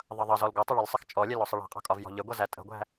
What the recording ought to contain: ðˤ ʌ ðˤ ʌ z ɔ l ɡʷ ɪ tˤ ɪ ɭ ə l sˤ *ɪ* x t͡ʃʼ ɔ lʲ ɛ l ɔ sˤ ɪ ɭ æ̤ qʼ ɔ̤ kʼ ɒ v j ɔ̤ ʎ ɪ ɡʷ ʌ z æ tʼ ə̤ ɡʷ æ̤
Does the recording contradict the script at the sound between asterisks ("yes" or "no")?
no